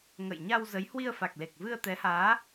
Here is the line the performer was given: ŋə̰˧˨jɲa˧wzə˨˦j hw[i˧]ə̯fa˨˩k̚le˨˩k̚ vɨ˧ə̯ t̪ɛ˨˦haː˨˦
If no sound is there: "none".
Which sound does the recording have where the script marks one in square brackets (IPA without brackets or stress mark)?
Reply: i˧